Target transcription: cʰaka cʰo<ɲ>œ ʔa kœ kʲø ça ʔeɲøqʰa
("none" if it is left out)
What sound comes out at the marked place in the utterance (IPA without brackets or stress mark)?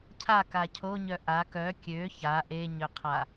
ɲ